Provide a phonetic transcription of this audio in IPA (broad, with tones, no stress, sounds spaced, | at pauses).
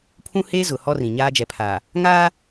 pʰ ũ˦ h e˦ z ʊ˨ h ɔ˦ r ĩ˨ ɲ aː˦ d͡ʒ ɛ˨ pʰ aː˨ | ŋ aː˦